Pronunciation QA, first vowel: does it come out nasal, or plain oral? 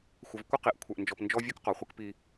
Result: oral